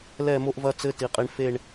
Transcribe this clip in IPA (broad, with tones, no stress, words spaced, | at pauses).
lɛ˦˨mo˦ʔvɐ˦ t͡sɘ˦ti˨qʼi˨ɳ fe˦˨ɳ